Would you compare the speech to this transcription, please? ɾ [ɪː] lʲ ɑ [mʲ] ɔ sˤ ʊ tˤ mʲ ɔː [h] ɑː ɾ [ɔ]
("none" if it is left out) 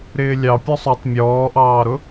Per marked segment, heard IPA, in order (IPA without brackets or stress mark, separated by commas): ɪː, pʲ, ʔ, ʊ